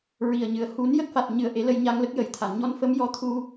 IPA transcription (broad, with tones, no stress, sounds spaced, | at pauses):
ɹ i˨˩ ə̯ ɲ ɨ˨˩ ə̯ h u˨˩˦ n j ə˦˥ k̚ f a˨˩ t̚ ɲ ɨ˨˩˦ ə̯ ʔ e˨˩˦ l ə˧ j ɲ a˧ ŋ l ə˦˥ k̚ j ə˨˩˦ j t̪ʰ a˨˩˨ n ɲ ɔ˧ n f ə˧˥ m j ɔ˧ t̪ʰ u˧